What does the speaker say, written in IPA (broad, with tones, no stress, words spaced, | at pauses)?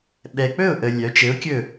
ɓɛ˨k͡pɵ˥˨ʊ̯ ʔə˦lʲœ˨˥ t͡ʃɘ˨˥ʊ̯kʲɵ˥˨